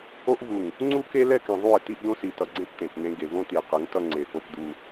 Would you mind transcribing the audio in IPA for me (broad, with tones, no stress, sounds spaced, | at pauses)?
o˦ ʔ v u˨ ŋ | ŋ͡ǀ u˦ k e˦ l ɛ˦ k ɛ̃˨ ðˤ u˦˨ e̯ t i˦ ʔ d̪ õ˦ s i˨ t ʌ˨ ɡ͡ǀ ẽ˦ p t̪ ẽ˨ t n̪ ẽ˦ ɡ e˨ v õ˦ t̪ i˨ e̯ q ɯ˨˦ ŋ t ʌ˦ ŋ͡ǀ e˨ p o˦ p d̪ u˦